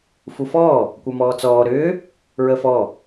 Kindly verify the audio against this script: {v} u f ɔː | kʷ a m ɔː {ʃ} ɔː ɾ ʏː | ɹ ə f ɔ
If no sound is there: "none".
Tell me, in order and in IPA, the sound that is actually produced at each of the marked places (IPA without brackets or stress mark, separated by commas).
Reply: f, t͡s